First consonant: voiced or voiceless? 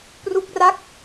voiceless